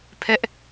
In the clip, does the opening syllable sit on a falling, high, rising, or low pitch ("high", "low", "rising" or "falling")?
high